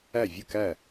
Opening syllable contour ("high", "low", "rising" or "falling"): falling